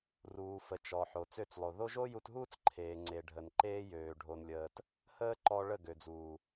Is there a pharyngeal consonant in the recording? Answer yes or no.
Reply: yes